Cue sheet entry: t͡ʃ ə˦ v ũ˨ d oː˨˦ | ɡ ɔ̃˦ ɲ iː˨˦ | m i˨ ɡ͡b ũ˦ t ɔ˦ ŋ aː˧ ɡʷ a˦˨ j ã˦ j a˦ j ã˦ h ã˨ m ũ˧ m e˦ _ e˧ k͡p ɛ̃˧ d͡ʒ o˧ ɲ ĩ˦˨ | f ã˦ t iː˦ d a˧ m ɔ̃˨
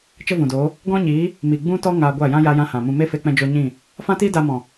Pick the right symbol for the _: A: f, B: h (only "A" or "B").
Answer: A